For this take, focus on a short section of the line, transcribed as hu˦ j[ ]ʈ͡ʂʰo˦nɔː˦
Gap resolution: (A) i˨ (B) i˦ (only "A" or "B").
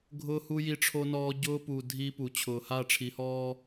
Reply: B